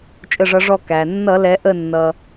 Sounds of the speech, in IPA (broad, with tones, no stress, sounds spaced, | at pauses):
t͡ʃʼ ə˧˩ ʐ ʌ˩˧ ʐ ɔ˧˩ k æ˩ nː ʌ˧˩˧ l ɛ˩˧ ʔ ə˧˩ nː ʌ˩